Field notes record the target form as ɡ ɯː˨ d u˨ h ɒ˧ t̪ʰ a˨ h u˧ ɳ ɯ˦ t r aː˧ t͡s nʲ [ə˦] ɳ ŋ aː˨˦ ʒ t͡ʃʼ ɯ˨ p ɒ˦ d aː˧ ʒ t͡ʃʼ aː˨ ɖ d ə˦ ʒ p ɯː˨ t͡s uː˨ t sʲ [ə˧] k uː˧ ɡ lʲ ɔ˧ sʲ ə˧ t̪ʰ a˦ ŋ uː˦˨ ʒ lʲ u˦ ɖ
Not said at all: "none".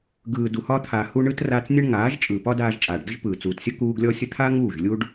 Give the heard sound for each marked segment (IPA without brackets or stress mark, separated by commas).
ə˦, ə˦